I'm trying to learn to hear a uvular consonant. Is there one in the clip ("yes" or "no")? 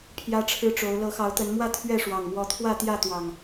no